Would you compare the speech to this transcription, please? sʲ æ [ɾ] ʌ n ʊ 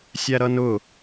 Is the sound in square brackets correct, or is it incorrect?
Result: correct